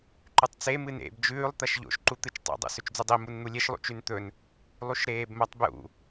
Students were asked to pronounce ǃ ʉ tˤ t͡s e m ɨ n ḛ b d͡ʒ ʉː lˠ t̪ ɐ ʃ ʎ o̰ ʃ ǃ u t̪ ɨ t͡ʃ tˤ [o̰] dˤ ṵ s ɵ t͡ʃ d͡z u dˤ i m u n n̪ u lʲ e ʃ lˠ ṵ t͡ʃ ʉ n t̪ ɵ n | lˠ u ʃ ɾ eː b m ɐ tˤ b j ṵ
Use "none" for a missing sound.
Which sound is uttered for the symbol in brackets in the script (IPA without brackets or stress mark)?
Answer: o̰